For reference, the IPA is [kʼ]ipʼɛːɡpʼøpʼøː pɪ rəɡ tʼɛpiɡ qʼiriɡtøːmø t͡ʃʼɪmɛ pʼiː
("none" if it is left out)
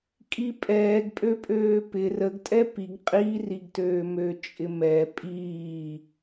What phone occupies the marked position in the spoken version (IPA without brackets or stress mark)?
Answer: kʼ